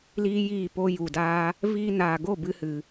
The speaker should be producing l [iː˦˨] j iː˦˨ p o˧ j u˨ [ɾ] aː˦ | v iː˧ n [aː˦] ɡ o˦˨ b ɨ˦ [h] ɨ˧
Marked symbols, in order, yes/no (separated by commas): no, no, no, yes